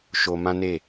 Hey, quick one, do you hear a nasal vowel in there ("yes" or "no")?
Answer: yes